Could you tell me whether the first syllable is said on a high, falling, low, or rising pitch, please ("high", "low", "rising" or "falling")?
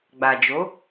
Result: low